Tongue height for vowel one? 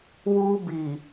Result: high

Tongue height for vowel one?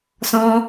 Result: mid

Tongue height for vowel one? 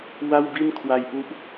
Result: low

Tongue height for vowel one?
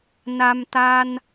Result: low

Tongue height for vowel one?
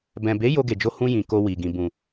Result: mid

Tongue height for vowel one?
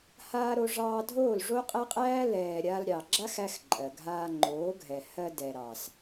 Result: low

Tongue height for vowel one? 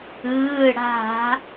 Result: high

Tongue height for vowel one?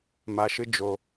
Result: low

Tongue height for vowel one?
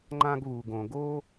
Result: low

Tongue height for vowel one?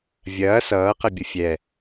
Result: low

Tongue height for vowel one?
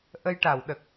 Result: mid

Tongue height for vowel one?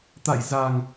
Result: low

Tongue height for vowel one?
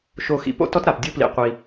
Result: mid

